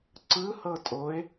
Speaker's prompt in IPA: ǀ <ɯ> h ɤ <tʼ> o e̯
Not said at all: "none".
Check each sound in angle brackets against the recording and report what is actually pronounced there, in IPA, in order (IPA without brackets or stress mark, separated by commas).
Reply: ɯ, tʼ